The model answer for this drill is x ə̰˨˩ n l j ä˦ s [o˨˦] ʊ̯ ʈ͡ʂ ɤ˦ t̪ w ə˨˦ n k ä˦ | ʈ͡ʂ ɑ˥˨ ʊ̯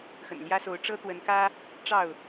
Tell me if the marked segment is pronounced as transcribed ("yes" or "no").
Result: yes